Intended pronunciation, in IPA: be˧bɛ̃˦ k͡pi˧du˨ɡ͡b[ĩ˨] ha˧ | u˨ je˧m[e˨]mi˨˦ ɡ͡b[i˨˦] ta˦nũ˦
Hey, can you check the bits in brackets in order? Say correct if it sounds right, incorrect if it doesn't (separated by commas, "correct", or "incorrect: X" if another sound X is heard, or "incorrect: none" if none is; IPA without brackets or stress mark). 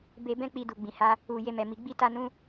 correct, incorrect: ɛ˨, incorrect: i˦